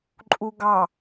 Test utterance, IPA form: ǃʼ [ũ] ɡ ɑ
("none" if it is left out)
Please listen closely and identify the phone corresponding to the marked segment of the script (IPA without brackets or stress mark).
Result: u